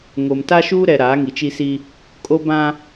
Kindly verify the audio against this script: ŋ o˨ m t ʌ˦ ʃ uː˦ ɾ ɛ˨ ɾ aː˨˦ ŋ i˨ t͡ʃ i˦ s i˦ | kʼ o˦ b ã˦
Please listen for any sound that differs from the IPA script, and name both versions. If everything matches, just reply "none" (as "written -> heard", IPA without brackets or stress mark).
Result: ʌ˦ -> a˦